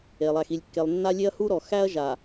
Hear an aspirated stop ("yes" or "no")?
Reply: no